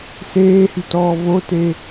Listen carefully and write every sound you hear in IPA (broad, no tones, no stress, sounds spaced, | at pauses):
s eː h y t ɔː v o t e